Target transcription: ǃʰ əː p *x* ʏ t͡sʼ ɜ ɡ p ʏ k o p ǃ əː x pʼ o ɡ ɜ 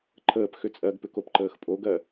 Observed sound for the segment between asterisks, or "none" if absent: x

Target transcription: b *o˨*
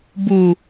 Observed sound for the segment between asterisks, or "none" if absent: u˨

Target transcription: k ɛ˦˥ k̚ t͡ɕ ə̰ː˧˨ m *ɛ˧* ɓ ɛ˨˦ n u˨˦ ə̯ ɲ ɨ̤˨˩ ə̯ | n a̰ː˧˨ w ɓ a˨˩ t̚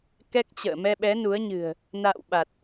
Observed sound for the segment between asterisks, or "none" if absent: ɛ˧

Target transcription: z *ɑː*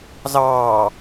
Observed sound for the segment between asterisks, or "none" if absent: ɑː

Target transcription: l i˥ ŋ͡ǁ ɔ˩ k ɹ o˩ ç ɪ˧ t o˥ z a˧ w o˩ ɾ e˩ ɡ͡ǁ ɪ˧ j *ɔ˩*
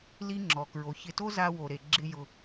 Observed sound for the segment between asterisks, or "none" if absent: ʊ˩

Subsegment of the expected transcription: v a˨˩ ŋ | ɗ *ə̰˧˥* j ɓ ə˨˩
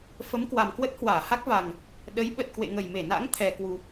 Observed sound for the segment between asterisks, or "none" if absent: ə˨˦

